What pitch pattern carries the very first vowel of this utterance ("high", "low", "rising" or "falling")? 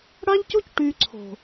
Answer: high